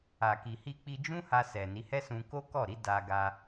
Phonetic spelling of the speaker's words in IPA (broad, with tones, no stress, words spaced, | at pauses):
a˨ki˨hi˧ k͡pi˧d͡ʒũ˦ha˧ sɛ˨ ni˨˦ hɛ˦sũ˧ ko˦kɔ˦˨ɾi˨˦ da˧ ɡa˧